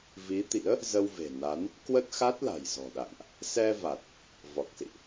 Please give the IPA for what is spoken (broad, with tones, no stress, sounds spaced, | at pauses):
v i˨˦ t̪ ḭ˧˥ ə̯ | z ə˧ w v e̤˨˩ n a˨˦ n | k w ə˦˥ t̚ x a˦˥ t̚ l a̤˨˩ j z ɔ̤˨˩ ɗ a̰˧˨ ŋ ʔ | s ɛ˧ v a˨˩ t̚ | v ɔ˨˩ k̚ s ḭ˧˨ ʔ